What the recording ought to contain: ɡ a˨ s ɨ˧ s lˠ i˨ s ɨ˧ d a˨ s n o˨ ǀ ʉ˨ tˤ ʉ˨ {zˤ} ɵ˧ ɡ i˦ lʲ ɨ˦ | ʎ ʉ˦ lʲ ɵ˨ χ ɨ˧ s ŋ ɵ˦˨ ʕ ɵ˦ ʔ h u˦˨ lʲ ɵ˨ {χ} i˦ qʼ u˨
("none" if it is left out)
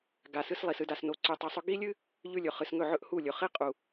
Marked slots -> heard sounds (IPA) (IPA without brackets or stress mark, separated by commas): sˤ, χ